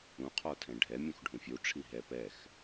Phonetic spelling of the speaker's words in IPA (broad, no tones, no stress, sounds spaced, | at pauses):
ũ qʰ ɔ tʰ ɛ̃ ɖʱ ɛ mʲ ũ x ɖʱ ũ fʲ u ʈ͡ʂʰ i ɦ ɛ p ɛ x